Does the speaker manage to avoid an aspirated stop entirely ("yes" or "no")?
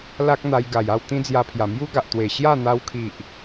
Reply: no